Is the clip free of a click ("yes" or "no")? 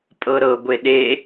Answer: yes